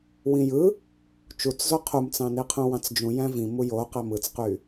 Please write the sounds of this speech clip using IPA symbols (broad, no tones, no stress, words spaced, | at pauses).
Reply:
wĩjɯ | t͡ʃut͡szo qʰumt͡sɑ̃ni qʰũwɑ̃t͡sd͡ʒũ jæ̃vĩ mujo qæmɯt͡sqy